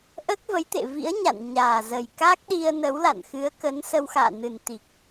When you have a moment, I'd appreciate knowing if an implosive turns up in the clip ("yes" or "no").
yes